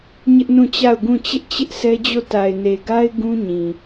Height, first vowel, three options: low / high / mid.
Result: high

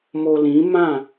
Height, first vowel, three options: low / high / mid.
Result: mid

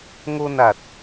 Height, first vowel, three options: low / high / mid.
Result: mid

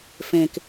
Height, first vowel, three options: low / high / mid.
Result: mid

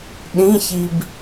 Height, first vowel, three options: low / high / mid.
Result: high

